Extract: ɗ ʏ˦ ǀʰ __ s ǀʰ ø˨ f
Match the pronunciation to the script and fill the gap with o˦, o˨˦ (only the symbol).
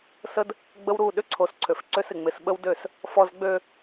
o˨˦